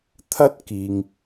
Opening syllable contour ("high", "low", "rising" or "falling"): high